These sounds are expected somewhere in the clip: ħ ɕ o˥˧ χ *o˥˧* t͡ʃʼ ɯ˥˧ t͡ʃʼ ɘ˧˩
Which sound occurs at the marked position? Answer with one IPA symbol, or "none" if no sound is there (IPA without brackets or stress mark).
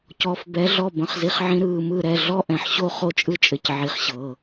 o˥˧